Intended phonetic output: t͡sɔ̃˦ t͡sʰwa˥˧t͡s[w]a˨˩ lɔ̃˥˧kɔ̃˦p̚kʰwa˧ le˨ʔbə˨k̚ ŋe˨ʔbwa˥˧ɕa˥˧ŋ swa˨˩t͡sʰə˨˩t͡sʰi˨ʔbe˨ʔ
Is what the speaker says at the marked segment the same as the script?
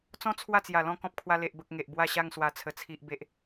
no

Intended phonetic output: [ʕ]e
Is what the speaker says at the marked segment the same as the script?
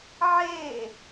yes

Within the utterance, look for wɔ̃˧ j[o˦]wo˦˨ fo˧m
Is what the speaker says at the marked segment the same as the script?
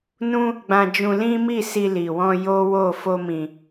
yes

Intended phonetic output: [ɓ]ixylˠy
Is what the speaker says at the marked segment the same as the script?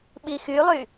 yes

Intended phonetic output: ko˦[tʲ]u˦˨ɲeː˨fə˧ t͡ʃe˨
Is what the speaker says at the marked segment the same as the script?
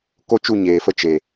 no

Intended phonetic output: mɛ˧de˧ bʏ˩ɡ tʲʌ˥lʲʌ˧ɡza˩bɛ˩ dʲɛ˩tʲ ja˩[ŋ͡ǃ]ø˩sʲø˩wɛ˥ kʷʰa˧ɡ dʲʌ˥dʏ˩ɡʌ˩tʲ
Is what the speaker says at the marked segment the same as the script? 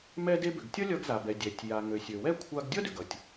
no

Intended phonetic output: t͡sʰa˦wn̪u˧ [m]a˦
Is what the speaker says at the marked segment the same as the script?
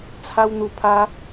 no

